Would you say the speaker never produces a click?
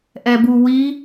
yes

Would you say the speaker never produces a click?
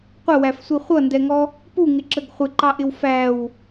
no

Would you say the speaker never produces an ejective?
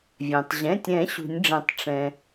yes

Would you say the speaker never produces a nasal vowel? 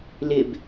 yes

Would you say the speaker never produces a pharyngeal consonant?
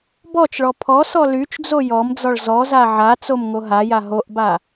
no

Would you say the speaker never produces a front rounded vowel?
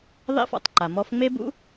yes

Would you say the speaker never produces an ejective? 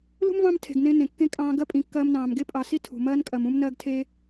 no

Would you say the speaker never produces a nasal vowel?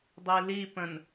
no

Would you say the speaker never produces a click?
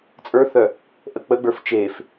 yes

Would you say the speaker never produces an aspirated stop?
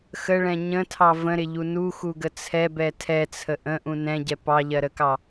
no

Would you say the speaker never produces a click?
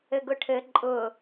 no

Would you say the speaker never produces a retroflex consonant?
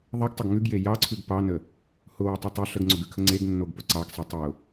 yes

